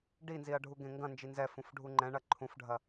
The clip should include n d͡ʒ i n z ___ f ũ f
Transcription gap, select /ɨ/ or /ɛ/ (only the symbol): ɛ